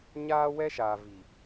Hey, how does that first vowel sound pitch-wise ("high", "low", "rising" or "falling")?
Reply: high